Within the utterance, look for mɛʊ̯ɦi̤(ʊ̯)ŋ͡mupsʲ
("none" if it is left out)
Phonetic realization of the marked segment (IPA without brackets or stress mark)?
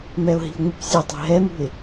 ʊ̯